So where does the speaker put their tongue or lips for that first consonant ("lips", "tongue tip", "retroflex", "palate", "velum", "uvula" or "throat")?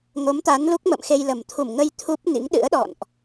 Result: velum